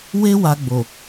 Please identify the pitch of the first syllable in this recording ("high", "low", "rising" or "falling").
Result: high